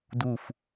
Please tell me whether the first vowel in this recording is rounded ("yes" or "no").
yes